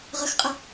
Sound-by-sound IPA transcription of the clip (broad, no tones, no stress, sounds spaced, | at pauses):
ʁ ə x qʼ ə